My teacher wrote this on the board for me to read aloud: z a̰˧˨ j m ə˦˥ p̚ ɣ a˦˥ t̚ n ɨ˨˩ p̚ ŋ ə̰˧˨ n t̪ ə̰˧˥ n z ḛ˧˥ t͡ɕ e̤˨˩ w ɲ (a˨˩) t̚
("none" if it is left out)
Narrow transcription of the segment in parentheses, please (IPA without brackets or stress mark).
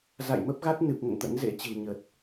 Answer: ə˨˩